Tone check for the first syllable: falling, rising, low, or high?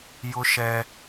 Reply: high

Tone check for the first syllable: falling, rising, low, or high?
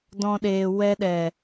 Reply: high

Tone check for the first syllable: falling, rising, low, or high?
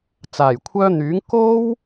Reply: low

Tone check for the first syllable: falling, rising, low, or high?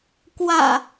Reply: low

